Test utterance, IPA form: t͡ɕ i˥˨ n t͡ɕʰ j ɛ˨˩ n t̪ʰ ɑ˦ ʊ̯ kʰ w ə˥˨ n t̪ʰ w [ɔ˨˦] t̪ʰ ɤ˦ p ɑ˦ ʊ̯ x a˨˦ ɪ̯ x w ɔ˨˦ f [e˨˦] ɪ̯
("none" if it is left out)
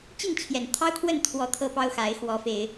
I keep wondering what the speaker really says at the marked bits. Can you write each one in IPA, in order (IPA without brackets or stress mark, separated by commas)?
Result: ɔ˨˦, e˨˦